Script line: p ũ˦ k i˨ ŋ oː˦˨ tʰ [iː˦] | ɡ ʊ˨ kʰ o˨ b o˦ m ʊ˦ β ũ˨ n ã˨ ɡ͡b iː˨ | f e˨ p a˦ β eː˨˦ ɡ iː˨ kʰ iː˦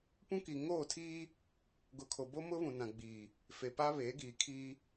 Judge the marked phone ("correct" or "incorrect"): correct